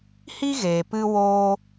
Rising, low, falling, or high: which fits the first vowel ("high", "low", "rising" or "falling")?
high